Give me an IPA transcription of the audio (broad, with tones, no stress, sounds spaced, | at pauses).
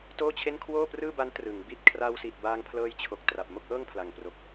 t oː˥˩ t͡ɕʰ e˥˩ n kʰ w oː˥˩ p r ɯː˥˩ b a˦˥ n t r ɯ˩˦ ŋ b i˥˩ t̚ kʰ r a˧ w s i˨˩ t̚ b aː˧ ŋ pʰ l ɤː˧ j t͡ɕʰ o˨˩ k̚ t r a˨˩ p̚ m o˥˩ k̚ ʔ ɤː˥˩ ŋ pʰ l a˨˩ ŋ p r o˨˩ k̚